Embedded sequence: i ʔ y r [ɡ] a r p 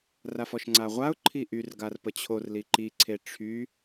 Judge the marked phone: correct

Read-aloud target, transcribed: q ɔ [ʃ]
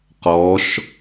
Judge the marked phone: correct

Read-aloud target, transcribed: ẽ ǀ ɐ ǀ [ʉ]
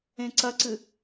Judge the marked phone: incorrect: ɨ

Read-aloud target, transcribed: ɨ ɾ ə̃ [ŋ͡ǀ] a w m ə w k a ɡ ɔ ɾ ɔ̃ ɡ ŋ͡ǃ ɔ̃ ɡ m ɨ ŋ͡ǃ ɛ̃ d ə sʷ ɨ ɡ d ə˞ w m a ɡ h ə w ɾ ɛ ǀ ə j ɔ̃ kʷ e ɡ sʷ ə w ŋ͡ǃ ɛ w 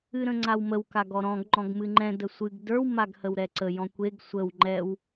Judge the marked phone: correct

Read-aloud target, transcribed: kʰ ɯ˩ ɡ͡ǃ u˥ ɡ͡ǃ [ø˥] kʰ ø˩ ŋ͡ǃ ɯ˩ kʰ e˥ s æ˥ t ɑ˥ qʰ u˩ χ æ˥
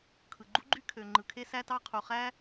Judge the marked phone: incorrect: y˥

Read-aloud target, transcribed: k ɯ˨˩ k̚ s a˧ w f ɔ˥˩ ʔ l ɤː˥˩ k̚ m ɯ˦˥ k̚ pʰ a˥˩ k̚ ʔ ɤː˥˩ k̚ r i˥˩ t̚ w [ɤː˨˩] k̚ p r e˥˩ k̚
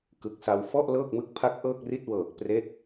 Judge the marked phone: correct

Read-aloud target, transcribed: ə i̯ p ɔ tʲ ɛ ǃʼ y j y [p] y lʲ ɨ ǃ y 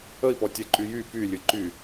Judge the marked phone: correct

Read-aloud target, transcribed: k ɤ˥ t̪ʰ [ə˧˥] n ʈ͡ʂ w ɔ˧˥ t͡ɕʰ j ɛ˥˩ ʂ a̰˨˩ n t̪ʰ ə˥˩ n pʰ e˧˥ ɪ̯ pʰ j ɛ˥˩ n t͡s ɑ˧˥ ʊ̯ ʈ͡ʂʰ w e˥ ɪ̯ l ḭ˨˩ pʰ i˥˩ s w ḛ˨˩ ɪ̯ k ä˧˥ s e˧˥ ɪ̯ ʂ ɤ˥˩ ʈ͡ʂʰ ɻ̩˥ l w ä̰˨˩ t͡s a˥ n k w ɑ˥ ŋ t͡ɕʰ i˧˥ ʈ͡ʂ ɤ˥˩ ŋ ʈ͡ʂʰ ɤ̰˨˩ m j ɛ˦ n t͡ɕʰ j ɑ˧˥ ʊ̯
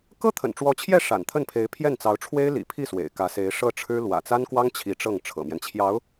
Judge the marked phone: incorrect: ə̰˨˩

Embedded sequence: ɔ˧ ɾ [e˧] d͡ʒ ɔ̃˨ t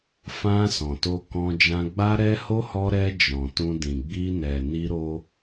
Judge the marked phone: incorrect: ɛ˧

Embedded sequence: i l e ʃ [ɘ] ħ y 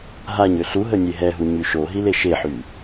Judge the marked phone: incorrect: e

